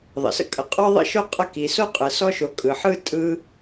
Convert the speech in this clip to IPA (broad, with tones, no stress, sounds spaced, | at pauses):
ðˤ ə̰˩ s ə̰˦ kʼ ə˨ qʼ ɔ˥ ðˤ ə̰˥ ʃ o˥ qʼ ə˦ k i˩ s o˥ qʼ ɯ˩ s ɔ˦ ʃ o˨ kʼ ɯ˩ ħ ɯ˥ tʼ ɯ˦